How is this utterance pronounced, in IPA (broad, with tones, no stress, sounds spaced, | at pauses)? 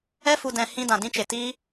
ɛ˦ f u˧ d ɛ̃˧ h ĩ˦ d ã˧ d ĩ˦ t͡ʃ e˧ t iː˦